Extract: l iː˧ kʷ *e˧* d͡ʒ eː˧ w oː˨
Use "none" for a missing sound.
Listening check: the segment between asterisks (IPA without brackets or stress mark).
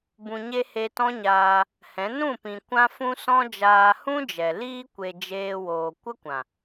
e˨